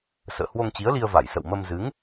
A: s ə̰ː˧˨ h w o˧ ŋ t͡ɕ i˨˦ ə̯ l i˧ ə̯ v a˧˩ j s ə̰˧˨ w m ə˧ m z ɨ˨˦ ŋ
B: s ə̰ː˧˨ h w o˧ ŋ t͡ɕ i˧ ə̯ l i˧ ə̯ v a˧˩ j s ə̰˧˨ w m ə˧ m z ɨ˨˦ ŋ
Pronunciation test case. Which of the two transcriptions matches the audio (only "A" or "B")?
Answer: A